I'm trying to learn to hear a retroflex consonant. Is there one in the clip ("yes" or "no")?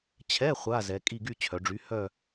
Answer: yes